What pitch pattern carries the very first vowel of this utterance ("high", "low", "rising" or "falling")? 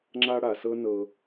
high